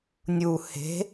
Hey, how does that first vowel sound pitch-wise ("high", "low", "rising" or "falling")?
low